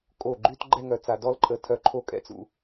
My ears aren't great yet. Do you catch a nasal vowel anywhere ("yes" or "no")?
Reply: no